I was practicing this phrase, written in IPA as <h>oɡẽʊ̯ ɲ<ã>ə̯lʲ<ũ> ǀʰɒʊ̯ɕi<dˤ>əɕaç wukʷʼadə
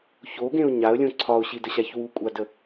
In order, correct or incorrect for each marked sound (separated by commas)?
incorrect, incorrect, incorrect, incorrect